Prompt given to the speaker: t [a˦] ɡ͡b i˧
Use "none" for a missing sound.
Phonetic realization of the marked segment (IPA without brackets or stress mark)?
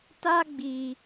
a˦